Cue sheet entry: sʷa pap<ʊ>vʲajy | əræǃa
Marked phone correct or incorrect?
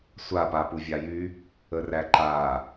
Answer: incorrect